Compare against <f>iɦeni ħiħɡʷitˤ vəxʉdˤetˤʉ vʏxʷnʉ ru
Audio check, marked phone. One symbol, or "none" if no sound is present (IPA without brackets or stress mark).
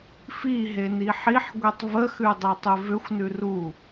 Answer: f